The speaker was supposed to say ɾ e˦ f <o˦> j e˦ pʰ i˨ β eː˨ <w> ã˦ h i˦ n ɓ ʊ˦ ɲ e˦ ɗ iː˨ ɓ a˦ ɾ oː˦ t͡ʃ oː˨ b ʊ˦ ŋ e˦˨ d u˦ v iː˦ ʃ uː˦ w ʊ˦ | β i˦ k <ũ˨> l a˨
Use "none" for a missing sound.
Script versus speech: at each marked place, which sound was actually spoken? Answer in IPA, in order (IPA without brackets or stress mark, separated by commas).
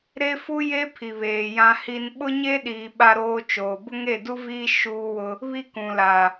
u˦, j, ũ˨